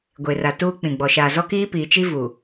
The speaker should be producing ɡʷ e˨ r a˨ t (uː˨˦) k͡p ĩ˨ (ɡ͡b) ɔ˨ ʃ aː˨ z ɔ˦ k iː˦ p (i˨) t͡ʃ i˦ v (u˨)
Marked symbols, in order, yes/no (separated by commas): no, yes, no, yes